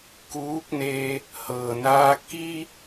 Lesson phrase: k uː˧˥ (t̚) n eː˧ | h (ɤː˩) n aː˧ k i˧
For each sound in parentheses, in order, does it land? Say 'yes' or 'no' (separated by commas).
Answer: no, yes